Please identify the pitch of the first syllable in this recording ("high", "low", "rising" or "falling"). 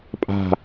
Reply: falling